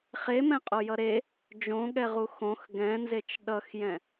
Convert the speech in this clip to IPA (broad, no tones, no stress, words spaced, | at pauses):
χemɛ̃qʼojʌ ɾe | d͡ʒõɠɛʁu xõx ɡɛ̃nzet͡ʃ ɗʌxjɛ̃